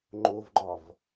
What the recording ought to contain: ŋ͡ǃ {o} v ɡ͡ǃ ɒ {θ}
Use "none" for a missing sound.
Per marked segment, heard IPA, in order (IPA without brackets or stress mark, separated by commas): o, v